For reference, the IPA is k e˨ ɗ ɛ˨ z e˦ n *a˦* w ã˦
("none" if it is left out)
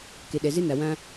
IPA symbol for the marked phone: a˨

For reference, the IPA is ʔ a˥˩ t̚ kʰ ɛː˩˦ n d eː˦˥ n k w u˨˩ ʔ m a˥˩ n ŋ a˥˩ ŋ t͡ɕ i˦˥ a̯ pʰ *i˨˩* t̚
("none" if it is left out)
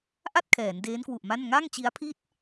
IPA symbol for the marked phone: i˥˩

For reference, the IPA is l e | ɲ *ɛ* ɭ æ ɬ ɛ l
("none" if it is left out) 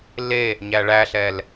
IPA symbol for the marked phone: æ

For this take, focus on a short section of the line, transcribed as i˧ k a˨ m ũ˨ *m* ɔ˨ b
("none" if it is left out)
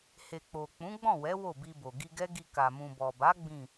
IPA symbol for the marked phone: b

